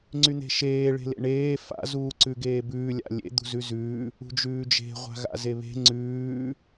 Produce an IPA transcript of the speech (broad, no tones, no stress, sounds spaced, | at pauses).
ŋ͡ǀ y n̪ e̤ ʃ eː ɭ e̤ l ḛ ɳ eː f a̰ z uː ǀ ʉ ɡ eː b ʉː lʲ a̰ lʲ ḛ d̪ ṳ z ʉ z ʉː | ṳ d͡ʒ ʉː d͡ʒ e̤ ʁʷ a̤ ɣ a̰ z e β e̤ ŋ͡ǀ ʉː